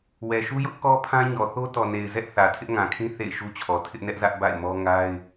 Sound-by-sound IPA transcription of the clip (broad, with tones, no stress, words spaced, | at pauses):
wɛ˨ʃu˦ jʊ˦ʔkɔ˦pʰã˦ ɲɔ˨θo˦tɔ˨ne˨ɪ̯ zɛ˦ʔθä˨ tʰɪ˦ʔŋã˨kʰĩ˦ θḛ˦˨ɪ̯ʃu˦t͡ɕʰɔ˨ tʰɪ˦ʔnɛ˦ʔzä˦ʔ ba̰˦˨ɪ̯mɔ˦ ŋa˦ɪ̯